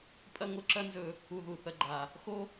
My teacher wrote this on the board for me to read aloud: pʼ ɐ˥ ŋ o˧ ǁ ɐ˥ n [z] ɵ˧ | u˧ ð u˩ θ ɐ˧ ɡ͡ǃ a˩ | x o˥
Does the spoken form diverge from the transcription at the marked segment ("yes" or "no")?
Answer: no